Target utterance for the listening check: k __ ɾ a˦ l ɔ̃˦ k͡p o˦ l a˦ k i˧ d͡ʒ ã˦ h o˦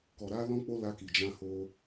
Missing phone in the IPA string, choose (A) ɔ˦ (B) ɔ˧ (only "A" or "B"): B